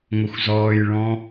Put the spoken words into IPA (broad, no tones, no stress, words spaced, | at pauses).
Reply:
ŋʷʌxʷzɔːjɭɔ̃